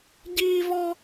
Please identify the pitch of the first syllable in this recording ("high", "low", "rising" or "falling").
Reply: high